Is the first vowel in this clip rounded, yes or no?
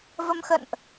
no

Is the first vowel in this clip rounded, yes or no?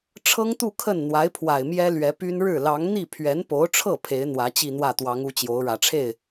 no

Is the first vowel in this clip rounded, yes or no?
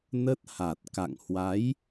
no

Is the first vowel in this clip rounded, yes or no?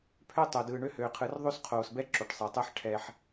yes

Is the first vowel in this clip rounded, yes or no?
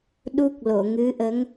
yes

